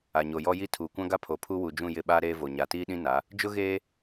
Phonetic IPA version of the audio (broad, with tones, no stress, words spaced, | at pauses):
a˨ɲo˨jɔ˦ji˦ tʰuː˨kʷã˦ɡa˦ pʰo˨pʰu˦wu˨ d͡ʒũ˦˨jɪ˦˨ɓaː˦ ɾeː˦vo˨ ɲa˨tiː˦ɗĩ˦ na˨˦ | d͡ʒʊ˦ɣeː˦